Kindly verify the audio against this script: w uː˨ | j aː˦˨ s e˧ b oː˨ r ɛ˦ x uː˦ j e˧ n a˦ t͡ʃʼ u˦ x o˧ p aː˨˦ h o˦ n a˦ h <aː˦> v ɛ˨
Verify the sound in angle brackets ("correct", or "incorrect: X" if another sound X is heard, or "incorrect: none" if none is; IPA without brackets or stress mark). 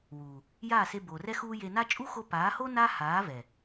incorrect: aː˨˦